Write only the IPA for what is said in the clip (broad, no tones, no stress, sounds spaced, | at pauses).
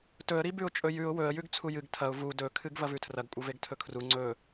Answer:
t ɵ ə̯ ɾ i b ʉ ʊ̯ t͡ʃʼ ɵ j ʉ ʊ̯ w ɵ ə̯ j ʉ ɡ t͡sʰ u j ɨ ɡ tʰ ɐ ʊ̯ v u d ɵ kʰ ɨ ɡ v ɐ v ʉ tʰ r ɐ ɡ kʷʼ ɐ v e ɡ tʰ ɵ kʰ r u ŋ͡ǀ ɵ